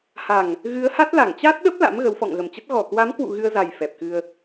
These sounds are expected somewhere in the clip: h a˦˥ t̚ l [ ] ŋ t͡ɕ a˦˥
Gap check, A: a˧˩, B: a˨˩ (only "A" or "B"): A